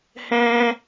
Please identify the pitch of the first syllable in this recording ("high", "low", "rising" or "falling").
high